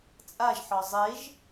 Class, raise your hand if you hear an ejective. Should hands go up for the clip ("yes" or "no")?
yes